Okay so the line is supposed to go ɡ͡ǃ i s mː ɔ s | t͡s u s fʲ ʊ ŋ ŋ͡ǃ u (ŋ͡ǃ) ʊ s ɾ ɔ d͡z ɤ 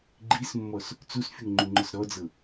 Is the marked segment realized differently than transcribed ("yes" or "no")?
no